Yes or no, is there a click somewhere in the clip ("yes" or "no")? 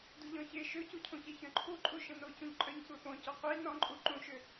yes